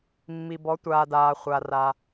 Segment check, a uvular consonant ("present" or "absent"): present